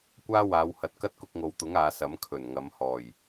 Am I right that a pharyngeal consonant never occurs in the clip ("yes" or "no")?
yes